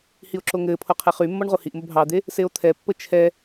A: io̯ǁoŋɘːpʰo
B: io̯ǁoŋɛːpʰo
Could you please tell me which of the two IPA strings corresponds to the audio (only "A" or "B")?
A